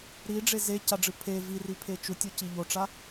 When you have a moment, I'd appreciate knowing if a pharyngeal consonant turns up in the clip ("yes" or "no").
no